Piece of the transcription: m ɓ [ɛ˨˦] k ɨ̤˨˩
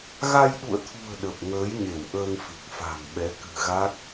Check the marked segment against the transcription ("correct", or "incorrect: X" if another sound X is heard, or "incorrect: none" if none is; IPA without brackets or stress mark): correct